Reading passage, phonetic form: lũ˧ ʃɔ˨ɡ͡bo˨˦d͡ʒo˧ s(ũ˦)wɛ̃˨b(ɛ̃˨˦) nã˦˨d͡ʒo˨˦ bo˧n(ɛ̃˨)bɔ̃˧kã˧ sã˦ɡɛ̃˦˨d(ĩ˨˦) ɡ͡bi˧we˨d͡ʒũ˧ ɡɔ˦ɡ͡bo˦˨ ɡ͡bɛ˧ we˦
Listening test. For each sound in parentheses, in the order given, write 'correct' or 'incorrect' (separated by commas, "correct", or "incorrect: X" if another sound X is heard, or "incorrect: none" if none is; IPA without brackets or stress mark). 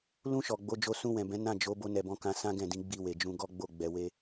incorrect: ũ˧, correct, incorrect: ɛ˨, correct